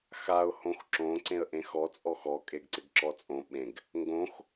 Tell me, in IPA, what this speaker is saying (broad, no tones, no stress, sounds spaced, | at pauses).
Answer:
x a ʊ̯ h õ x ǁ õ ǀ ẽ ə̯ ʔ ẽ x ɔ t͡sʼ ɔ x ɔ kʼ e ɡ ǀ ɪ ɡ ǁ ɔ t͡sʼ õ ɓ ẽ ɡ | ŋ ɡ õ x